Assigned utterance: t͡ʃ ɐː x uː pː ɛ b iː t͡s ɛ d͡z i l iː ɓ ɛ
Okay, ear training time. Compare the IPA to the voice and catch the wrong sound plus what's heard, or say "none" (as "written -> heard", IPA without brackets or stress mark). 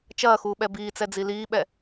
pː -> ɓ